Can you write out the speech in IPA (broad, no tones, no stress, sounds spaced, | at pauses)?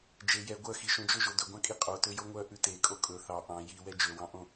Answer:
d͡ʒ e j ɛ ɡʷ œ x i ʃ õ d͡ʒ ɵ ʒ o d ɵ ɡʷ ɑ̃ kʼ i qʼ o t ø j o ŋʷ œ ʔ ʉ t e kʼ o kʼ ɵ θ ɑ ʔ ɑ̃ j i w ɛ d͡ʒ ø w ɑ̃ ʔ õ